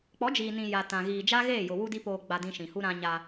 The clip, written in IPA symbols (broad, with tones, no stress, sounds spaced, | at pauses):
k͡p ɔ˨˦ d͡ʒ iː˨ n ĩ˨ j a˨ t ã˨ ɣ iː˨ d͡ʒ a˦ ɣ eː˦˨ j ʊ˨ w u˦ d i˦ p oː˨ ɡ͡b a˨ d ĩ˨ ʃ ĩ˨ h u˦ ɾ ã˦ ɲ a˦